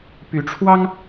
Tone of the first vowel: rising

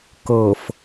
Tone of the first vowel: low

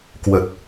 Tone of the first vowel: low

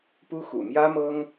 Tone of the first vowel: high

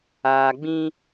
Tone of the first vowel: low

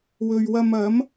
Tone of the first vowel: low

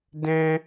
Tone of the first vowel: high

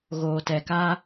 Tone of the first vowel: low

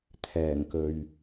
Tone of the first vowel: low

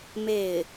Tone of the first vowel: falling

